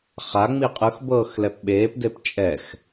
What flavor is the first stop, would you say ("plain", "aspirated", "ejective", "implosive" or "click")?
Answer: ejective